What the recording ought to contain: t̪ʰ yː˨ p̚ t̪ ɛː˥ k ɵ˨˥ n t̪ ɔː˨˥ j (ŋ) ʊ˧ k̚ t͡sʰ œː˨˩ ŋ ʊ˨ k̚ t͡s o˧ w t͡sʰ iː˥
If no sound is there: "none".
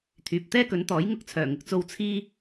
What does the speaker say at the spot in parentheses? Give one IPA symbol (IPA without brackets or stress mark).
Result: ŋ